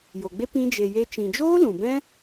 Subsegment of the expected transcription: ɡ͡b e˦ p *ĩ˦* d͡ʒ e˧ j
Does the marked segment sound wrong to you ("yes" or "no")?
no